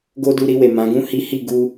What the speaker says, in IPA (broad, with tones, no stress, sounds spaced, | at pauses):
ɡ o˦ d u˧ ɾ i˧ w e˨ m ã˨˦ ɡ ũ˦ h i˦ h i˦˨ ɡ u˧